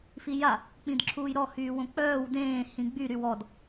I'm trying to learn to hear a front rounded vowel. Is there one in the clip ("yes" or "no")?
yes